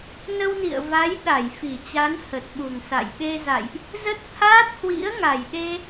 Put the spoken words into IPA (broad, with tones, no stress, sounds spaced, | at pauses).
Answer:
n ə˧ w n ḭ˧˨ ə̯ v a˨˦ j ɗ a˧˩ j f i˧˩ t͡ɕ a˨˦ n h ə˨˩ t̚ ɓ u˨˩ ŋ s a̰˧˨ j ɓ e˧ z a̰˧˨ j ʔ | z ə˦˥ t̚ t̪ʰ aː˦˥ t̚ h w ḭ˧˥ ə̯ ŋ a˨˩ j ɗ e˧